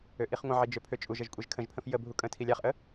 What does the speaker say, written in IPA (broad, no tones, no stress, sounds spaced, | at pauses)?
ø ʔ i χ ŋʷ ə̃ ʕ i d͡ʒ ø pʰ ø t͡ʃʼ u ʒ ə ʒ kʷʼ e ʒ kʰ ə̃ ʒ pʰ ə̃ f j ə bʱ u kʼ ə̃ tʰ i lʲ a χ ʔ ə